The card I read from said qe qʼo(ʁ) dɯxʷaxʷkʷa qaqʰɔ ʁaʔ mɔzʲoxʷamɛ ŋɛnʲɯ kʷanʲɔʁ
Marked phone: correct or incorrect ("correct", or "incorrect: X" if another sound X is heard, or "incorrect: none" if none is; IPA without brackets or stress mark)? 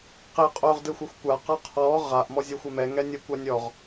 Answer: correct